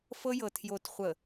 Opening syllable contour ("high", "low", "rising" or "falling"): high